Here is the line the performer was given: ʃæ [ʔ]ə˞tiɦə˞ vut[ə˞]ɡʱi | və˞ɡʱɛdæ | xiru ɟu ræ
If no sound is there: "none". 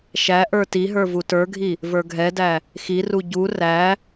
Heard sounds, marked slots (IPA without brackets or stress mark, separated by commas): ʔ, ə˞